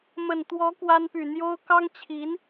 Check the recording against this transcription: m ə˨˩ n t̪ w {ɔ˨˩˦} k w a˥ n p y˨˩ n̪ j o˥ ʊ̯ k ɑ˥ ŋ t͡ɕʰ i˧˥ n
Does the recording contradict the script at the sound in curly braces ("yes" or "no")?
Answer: yes